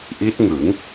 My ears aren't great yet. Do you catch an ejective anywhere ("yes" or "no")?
no